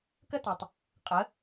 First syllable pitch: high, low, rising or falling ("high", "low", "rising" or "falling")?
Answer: high